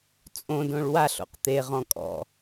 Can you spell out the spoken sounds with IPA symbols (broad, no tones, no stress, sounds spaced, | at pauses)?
t͡sʼ õ d õ ɭ w a ɬ o̰ q t̪ e ʁ ɔ̃ kʼ ɔ̰